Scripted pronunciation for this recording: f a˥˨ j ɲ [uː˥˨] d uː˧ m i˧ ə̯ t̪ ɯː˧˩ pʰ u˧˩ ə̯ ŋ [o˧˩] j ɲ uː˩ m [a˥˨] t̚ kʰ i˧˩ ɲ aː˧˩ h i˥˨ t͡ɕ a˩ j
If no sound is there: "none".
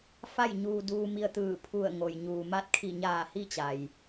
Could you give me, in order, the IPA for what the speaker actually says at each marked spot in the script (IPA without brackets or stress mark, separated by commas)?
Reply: uː˧, o˩, a˧˥